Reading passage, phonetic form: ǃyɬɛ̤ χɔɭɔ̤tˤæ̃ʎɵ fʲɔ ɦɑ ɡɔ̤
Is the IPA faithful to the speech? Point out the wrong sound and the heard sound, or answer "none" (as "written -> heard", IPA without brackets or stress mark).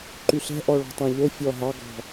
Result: χ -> ʔ